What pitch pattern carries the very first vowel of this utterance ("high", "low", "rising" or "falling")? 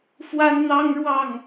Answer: high